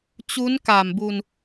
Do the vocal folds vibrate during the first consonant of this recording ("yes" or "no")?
no